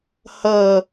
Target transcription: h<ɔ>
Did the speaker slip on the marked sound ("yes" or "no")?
yes